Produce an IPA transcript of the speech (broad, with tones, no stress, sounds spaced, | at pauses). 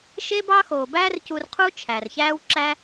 ʃ e˥ b ɑ˥ x oː˩ b æː˥ r c u˧ r qʰ u˥ t͡ʃʰ æ˩ r ç æː˥ w ǁ æ˥